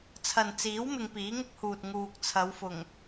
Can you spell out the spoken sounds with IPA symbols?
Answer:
t͡sʰɐ˨nt͡siː˨˥w mɪ˧ŋpiː˨˥ŋʊ˥k̚huː˨t̚ ŋuː˨k̚t͡sʰɐ˨˧wfʊ˨˩ŋ

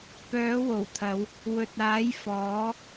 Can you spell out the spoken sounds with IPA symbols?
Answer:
pœː˨˥wo˨˩wt̪ʰɐ˨˧w | wɵ˨t̚aː˨˥j fɔː˨˥

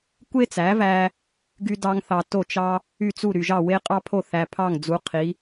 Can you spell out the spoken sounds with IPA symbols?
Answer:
kʷe˥t͡sæ˩˥væ˧ | ɡy˧dɑ˧ŋθɑ˩ to˥˩t͡ʃɑ˥ | y˥˩t͡su˥˩ ɾy˩ʒɑ˥˩ we˥ qʼɑ˥pʰo˥˩ θæ˩ pʰɑ˥˩ŋd͡zu˩˥ qʰi˩˥

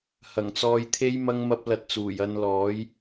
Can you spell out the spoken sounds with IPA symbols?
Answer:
hɐ˨˩ŋt͡sɔː˧jt̪ʰe˥j mɐ˥ŋmɐ˥p̚lɐ˧t̚t͡suː˨˩j ɐ˧nlɔː˨˥j

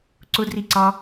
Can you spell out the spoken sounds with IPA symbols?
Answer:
ǀʊ driǀɑ

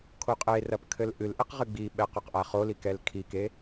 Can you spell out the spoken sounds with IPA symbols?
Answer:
kʰoqʼerɐp kʰɘlʔɨlʔeq ʁɨɡ͡biɓɛ qɔqʔaχoli kɛlkʰike

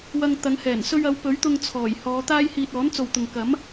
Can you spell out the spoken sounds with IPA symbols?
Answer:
wɐ˧ŋt̪ɐ˨˧ŋhɛː˨˩n sɵ˧ɥɐ˨˧w pɵ˨˥ɥt̪ʊ˧ŋ t͡sʰɔː˨˩jhɔː˨˧ t̪aː˥jhiː˧t̚ ɔː˨˥nt͡so˨wt̪ʊ˨ŋ kɐ˨˥m

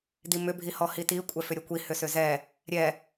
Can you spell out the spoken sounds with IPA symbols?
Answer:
dimʏ bʱihɔhiti kʷʼɛfʏɾʲɛkʷi hʏsʏzɛ | ɾʲɛ

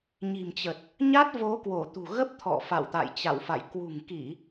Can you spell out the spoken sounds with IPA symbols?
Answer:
ɲi̤˨˩mt͡ɕə˨˩t̚ | ɲa˦˥t̚vo˨˦kwo˧˩t̪ṳ˨˩ ɣə˦˥p̚t̪ʰɔ̰˧˨fa̰˧˨wt̪a̰˧˨j t͡ɕa̰˧˨wfa̰˧˨j kwṳ˨˩ŋki˧˩˨

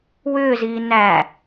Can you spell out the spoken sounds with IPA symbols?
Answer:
wʏːziː næ

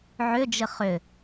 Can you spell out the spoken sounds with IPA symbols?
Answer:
ʕʏd͡ʒɘ χʏ

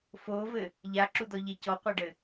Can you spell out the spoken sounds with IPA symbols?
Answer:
fovɘ | ʎaǁudɔʎe cɔqʷaɖɘ

